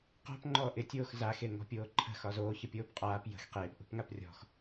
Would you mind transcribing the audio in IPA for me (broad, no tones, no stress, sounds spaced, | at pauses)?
q ɔ̤ p ŋ͡ǃ ɔː ʔ ɪ tʲ oː x z a x e ŋ ɔ̤ pʲ oː ǃʰ ə̤ x ɒ z oː ç ə pʲ oː p qʼ aː p j ə̤ x q eː p ʔ ṳ p ŋ a p rʲ ɔ̤ x